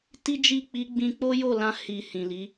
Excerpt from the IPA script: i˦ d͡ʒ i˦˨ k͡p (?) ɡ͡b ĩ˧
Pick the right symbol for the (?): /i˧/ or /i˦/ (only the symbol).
i˧